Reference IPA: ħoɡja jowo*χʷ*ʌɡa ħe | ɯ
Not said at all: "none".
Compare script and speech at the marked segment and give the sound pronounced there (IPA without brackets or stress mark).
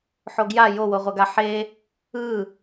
ʁʷ